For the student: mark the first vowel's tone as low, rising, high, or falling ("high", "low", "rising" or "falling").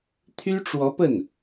high